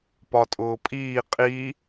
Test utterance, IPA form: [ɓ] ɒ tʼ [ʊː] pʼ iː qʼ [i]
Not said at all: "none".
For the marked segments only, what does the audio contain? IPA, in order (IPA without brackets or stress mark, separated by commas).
p, ʊː, i